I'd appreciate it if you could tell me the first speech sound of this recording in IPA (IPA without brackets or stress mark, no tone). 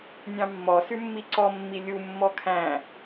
nʲ